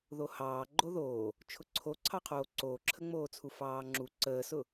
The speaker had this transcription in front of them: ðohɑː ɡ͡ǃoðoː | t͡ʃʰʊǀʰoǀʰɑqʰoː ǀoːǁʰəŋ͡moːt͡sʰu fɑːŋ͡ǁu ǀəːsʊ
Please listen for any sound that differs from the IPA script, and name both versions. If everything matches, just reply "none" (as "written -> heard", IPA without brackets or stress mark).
none